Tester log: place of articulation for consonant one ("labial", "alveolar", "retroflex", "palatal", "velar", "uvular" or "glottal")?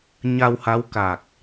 palatal